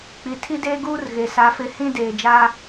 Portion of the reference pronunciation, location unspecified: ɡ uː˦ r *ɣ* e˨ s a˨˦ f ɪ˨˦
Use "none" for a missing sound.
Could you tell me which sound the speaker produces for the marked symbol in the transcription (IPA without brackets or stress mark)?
ɣ